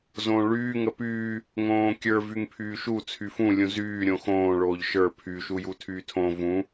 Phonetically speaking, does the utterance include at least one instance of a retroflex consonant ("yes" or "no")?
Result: yes